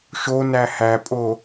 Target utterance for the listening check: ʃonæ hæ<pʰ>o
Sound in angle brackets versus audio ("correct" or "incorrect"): incorrect